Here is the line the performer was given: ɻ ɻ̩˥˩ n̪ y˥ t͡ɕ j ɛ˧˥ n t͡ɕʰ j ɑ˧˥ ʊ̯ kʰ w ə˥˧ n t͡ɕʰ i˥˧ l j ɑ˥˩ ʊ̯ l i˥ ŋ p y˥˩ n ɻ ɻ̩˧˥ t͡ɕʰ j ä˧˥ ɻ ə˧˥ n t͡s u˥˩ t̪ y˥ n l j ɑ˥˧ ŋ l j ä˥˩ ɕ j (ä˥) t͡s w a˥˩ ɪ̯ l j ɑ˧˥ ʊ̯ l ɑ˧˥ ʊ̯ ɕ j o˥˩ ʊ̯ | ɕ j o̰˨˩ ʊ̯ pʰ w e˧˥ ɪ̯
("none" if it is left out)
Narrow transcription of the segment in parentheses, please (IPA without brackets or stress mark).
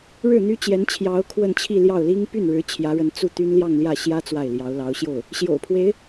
ä˥